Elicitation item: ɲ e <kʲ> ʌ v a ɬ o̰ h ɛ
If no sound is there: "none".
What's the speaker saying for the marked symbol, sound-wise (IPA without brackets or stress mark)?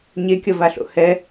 kʲ